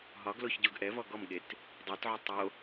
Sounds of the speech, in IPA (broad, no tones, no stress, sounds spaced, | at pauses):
ɦ ɒ ɡ l o ç ɟ o ɡ ʔ ɛ v ɔ ɡ ɔ m ɠ e t | dˤ ɜ t ʕ u tˤ o